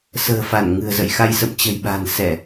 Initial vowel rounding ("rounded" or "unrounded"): unrounded